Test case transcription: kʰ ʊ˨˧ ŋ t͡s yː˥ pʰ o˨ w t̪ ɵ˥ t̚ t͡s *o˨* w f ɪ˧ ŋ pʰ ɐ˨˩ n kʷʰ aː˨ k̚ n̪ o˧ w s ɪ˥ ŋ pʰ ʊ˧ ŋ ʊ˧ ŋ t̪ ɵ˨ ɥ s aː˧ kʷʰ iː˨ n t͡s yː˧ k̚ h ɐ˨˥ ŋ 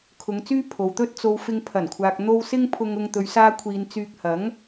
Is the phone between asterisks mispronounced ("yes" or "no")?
no